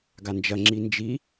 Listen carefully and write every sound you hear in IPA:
ɡand͡ʒɐŋ͡ǁi nd͡ʒi

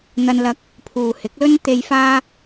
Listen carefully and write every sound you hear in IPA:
n̪ɐ˧nlɐ˧k̚ | pʰuː˨hɪ˨˥k̚lɵ˥n t̪e˨jfaː˧

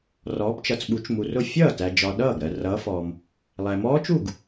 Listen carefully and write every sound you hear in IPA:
rɔː˨˦pt͡ʃʌ˨t͡sɓu˨˦t͡ʃ mu˨rʊ˥˩ fʲʌː˥˩ tæ˨d͡ʒɒ˨ ɗʌː˥˩ɡ ɾɜ˨rʌː˨˦fɔː˨m | lˠæ˨mɔː˦˥t͡ʃu˥˩ɡ

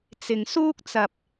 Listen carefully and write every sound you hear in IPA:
t͡sɪ˨ŋsuː˥k̚t͡sɐ˧p̚

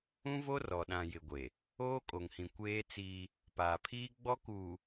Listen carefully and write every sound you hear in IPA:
ũ˦vo˦ rɔ˨ɗã˨ jɪ˨ɡʷe˨ | oː˦kʼo˨ŋhĩ˨ kʷeː˦t͡siː˦ | paː˨pʰiː˦ ɡ͡bɔ˦kuː˨

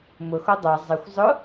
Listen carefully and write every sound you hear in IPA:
mʊxo dˤɛ zˤɪxʷ zˤʊ

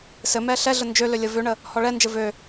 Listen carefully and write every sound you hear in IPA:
sɘ mɛɬɛɮə nd͡ʒølø lʲəvøɳə | hɔɭɛnd͡ʒɘ vø

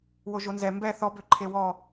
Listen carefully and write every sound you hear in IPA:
woʒonzɛ mbɛ θɔbø ǃʰewɔ

